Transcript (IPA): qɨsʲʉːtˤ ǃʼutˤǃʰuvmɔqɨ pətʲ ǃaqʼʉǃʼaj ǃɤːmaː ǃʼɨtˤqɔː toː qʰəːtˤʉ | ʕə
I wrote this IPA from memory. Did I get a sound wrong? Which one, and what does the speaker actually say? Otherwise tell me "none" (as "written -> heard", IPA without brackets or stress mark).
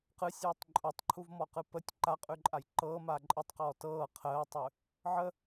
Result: oː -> ɤː